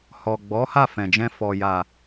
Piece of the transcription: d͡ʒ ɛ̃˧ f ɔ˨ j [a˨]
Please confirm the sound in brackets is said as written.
yes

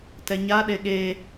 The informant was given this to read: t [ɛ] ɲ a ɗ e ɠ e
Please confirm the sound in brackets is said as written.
yes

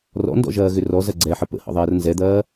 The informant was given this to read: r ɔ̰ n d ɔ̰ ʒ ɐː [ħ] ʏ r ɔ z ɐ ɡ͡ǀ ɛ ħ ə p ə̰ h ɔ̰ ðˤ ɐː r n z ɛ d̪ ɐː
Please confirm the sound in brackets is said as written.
no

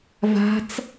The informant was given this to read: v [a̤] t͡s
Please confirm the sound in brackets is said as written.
yes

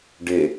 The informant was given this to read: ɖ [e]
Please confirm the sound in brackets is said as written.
yes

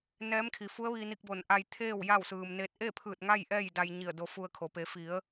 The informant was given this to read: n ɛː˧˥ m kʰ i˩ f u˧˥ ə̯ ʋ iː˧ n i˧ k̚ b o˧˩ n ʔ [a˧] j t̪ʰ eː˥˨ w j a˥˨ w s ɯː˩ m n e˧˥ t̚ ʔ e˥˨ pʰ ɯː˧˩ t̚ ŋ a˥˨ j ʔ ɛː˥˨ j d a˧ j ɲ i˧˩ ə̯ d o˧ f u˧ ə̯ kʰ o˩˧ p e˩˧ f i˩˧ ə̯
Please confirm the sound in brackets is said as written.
yes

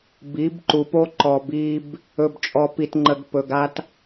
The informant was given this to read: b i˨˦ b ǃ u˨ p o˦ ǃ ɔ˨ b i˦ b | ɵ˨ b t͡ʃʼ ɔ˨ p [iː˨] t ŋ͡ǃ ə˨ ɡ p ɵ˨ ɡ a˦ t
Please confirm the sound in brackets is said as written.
no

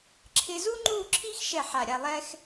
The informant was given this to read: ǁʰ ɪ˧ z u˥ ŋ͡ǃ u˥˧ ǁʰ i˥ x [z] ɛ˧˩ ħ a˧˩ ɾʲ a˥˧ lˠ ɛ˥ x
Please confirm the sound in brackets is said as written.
no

